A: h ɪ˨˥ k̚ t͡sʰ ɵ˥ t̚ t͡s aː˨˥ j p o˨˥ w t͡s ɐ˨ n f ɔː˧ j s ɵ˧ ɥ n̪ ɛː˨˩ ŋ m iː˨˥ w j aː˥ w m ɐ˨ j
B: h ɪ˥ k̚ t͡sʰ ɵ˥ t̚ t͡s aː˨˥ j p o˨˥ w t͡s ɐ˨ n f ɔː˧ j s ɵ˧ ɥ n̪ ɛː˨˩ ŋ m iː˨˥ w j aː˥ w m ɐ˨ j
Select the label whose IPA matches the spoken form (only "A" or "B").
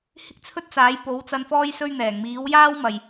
B